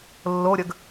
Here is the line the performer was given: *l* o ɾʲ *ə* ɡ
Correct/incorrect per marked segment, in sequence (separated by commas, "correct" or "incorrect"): incorrect, correct